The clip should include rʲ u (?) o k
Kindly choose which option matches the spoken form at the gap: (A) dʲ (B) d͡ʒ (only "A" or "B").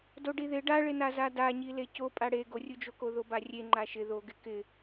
B